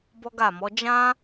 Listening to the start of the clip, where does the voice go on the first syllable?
high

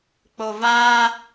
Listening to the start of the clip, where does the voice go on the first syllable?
low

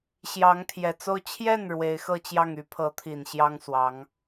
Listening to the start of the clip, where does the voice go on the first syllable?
rising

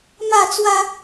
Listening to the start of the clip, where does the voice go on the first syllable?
falling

